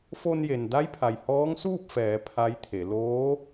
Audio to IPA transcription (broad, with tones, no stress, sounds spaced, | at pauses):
f o˧ n j e˩ n d a˧˥ j pʰ a˩ j h ɔː˧˥ ŋ s uː˥˨ p̚ f ɛː˩˧ pʰ a˧˥ j t̪ʰ e˩˧ l oː˧˥